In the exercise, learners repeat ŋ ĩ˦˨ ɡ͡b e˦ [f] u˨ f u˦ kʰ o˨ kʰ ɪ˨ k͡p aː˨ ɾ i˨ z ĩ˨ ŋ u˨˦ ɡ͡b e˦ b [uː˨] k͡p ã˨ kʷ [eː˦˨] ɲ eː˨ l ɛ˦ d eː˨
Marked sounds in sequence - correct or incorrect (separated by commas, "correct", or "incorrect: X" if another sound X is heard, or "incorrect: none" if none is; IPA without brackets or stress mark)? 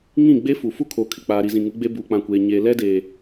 correct, correct, incorrect: eː˨